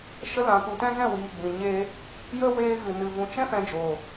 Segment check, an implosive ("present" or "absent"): absent